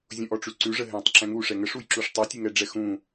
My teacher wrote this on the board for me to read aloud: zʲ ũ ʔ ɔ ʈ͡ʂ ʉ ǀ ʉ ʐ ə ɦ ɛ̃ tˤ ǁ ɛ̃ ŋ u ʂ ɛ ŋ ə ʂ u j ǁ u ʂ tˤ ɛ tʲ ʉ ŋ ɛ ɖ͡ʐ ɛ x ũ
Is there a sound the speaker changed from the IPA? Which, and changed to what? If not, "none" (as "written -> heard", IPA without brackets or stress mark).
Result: none